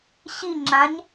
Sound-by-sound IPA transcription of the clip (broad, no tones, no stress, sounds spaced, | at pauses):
ɕ i ŋ͡ǁ ã ɲ